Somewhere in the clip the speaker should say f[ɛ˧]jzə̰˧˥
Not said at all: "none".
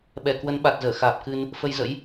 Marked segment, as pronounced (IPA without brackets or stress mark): ə˧